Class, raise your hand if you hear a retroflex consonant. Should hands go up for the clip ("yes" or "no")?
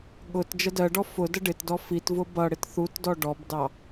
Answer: yes